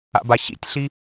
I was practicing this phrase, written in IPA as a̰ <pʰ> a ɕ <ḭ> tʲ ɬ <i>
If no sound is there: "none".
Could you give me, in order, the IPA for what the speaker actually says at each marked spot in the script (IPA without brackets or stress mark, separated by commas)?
b, ḭ, i